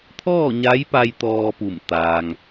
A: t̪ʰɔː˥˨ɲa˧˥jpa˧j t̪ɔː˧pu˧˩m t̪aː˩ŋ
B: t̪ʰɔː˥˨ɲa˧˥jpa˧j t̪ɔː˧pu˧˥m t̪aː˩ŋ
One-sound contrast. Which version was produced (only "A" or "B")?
A